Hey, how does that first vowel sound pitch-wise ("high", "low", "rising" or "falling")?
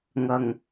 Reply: low